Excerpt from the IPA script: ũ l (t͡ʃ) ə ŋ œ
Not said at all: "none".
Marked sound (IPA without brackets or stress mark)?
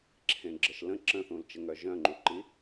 t͡ʃ